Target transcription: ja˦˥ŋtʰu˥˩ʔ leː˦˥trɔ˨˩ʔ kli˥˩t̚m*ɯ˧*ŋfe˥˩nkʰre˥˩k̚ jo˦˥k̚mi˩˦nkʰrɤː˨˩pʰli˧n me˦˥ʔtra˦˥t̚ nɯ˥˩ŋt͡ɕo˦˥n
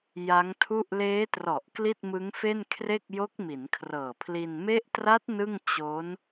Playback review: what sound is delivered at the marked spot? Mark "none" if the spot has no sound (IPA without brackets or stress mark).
ɯ˦˥